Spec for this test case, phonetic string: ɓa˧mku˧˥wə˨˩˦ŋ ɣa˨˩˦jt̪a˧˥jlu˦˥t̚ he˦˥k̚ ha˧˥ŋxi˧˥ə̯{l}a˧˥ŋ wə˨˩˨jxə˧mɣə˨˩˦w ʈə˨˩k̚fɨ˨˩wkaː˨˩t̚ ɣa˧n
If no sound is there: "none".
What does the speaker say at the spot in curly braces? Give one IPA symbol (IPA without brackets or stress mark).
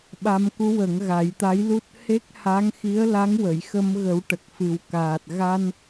l